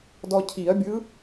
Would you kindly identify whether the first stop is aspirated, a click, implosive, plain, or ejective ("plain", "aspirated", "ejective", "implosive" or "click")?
plain